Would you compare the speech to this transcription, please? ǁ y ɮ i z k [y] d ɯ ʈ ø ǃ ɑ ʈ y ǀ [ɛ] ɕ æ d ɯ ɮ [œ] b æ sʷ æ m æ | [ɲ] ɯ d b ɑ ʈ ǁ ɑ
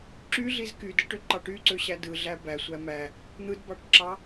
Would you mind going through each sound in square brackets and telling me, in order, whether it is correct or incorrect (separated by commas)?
correct, incorrect, incorrect, incorrect